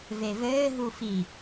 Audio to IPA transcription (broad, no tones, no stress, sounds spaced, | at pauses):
v e v ɘː ɦ u f i